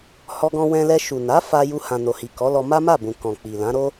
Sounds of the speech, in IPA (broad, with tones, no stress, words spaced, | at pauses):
hɔ˧ɡɔ̃˧wɛ̃˧lɛ˧ ʃu˨na˨˦ fa˧ju˧hã˨ no˨hi˨kɔ˨˦lɔ˧ ma˦ma˦˨bũ˨ kɔ̃˨k͡pi˨lã˨˦ ɾo˦